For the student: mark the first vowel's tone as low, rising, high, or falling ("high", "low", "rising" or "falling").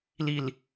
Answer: low